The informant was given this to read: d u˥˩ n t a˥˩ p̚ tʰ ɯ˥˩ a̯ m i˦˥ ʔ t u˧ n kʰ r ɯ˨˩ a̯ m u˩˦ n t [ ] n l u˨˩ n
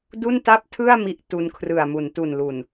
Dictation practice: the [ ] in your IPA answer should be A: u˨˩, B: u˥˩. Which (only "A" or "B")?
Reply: A